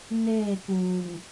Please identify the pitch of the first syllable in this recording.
falling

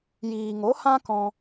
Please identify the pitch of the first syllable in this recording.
low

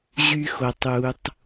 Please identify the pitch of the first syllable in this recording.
high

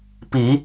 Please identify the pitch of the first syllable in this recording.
rising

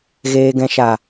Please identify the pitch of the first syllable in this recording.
low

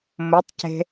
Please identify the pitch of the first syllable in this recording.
rising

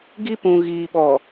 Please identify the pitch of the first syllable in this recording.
high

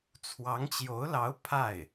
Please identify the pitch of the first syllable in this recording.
rising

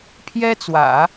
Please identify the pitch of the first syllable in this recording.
high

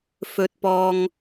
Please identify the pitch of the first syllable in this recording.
high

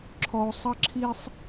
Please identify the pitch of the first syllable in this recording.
low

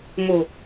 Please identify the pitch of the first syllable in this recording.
low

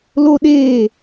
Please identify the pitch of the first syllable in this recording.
high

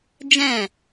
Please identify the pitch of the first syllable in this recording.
falling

